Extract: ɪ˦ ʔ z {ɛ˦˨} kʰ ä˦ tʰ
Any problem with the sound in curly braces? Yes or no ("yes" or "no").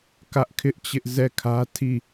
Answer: no